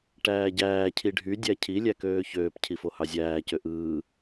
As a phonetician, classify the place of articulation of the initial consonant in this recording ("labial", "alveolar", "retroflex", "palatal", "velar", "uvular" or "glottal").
retroflex